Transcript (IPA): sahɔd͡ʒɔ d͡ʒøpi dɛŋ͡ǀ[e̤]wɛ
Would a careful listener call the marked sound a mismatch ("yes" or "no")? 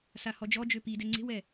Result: no